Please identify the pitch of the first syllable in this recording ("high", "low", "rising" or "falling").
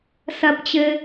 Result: high